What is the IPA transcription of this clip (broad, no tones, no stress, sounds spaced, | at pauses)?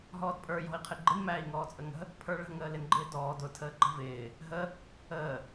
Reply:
ɦ ɔː d pʼ ə˞ j ɔ̤ i̯ qʰ ɪ ɡ͡ǃ ɪ n m æː i̯ ŋ ɔː t͡sʼ ə ŋ ə̤ | pʰ ə˞ ɭ ə̤ ŋ əː l ɪ n ɡ͡ǃ ɪː d ɔː d ʊ tʰ əː ǃ ə̤ v ɪː | ɦ ə | əː